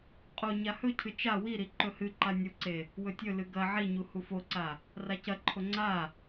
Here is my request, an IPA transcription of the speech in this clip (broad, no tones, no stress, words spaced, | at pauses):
qʼo ɲahɵcʰɨ t͡ʃa wiɾi ǃɵhɨǃa nʲuǀe | wɵtʲɵlɨ ɡɐ ʕiɲu hufoǀa | racɐǃʰo ŋ͡ǀa